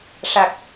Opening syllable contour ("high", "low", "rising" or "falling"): low